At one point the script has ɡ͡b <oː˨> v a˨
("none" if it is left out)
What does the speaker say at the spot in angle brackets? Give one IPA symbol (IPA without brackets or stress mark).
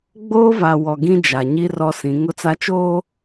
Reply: oː˦